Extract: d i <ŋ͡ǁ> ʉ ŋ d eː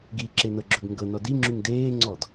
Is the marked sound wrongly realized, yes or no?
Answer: no